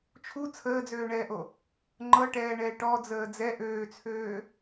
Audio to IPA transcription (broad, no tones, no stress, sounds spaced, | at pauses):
t͡ʃʰ u t͡sʰ əː d͡z øː ɳ ɛː ʔ o | ŋ͡ǃ ɤ ʈ ɛː ɳ ɛː ʈ ɔ d͡z əː d͡z ɛ ʔ øː t͡sʰ øː